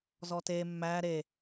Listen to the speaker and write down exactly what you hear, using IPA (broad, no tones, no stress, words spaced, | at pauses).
zɔte mːæ ɾe